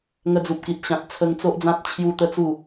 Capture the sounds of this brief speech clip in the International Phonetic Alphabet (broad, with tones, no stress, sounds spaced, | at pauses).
ŋ ə˧ d͡z u˨ p̚ k i˨ t̚ ɕ ã˨ t̚ t͡sʰ ə˧ ŋ t͡s o˦ ʔ d͡z ã˦ t̚ t͡ɕʰ j u˦ t̪ ə˦ t͡s u˥˧